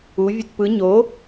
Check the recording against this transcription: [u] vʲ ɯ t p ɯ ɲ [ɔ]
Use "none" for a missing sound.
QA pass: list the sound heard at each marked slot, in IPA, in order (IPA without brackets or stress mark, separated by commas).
u, o